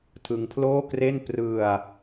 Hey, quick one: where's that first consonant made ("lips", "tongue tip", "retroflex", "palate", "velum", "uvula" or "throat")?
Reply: tongue tip